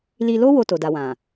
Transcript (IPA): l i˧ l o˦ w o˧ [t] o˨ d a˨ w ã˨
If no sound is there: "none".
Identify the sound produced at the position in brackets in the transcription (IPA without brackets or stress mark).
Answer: t